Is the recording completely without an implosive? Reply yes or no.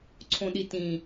no